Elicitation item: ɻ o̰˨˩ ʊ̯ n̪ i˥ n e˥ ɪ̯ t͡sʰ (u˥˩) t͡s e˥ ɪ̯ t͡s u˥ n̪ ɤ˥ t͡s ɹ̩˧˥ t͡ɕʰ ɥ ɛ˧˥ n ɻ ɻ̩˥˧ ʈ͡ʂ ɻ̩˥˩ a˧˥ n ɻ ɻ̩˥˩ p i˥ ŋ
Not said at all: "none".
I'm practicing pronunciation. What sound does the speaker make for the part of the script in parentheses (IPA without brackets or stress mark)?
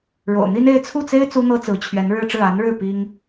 u˥˩